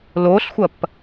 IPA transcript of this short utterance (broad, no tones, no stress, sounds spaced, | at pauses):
l o ɬ xʷ ɐ p